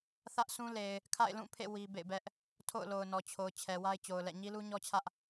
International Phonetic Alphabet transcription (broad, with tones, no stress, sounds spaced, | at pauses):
θ ä˦ ʔ sʰ ũ˦ l e˨ ɪ̯ | kʰ a̰˦˨ ɪ̯ l ũ˦˨ pʰ ḛ˦˨ w i˦ b ḛ˦˨ ɪ̯ b ɛ˦ ʔ | tʰ o̰˦˨ ʊ̯ l o˨ ʊ̯ n ɔ˨ t͡ɕʰ o˨ ʊ̯ t͡ɕʰ ɛ˨ w a˦ ɪ̯ t͡ɕ o˨ ʊ̯ l ɛ̰˦˨ ɲ i˦ l u˦ ɲ ɔ˦ t͡ɕʰ ä˦ ʔ